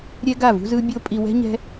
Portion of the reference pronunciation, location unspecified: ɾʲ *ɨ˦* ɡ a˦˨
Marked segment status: incorrect: ɛ˦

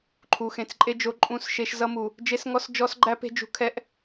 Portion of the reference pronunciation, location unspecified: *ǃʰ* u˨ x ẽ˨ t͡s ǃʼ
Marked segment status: correct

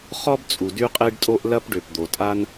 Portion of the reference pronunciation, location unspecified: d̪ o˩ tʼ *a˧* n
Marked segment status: correct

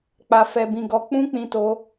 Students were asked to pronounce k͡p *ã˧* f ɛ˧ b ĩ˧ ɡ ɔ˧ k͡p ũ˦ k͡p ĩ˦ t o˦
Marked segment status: incorrect: a˧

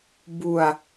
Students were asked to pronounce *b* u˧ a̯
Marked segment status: correct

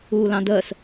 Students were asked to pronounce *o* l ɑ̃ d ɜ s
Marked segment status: incorrect: u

